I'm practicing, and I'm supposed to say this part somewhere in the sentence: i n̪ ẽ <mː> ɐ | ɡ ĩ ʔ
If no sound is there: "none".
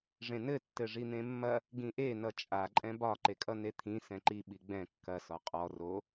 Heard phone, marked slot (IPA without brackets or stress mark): mː